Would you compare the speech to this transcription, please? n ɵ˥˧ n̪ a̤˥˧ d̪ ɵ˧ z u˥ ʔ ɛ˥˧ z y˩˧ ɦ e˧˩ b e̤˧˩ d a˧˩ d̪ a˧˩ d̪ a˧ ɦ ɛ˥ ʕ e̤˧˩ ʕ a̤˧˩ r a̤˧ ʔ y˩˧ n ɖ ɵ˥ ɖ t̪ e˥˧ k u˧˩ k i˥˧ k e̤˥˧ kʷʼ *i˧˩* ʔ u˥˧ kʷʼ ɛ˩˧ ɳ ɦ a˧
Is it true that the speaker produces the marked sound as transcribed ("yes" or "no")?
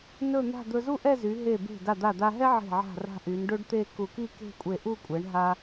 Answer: no